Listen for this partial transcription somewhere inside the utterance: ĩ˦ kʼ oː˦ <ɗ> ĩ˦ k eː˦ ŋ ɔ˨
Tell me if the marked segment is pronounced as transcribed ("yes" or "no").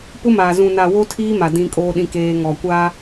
yes